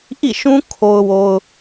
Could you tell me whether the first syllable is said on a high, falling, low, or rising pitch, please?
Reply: falling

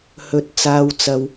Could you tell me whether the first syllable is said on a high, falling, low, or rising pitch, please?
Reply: rising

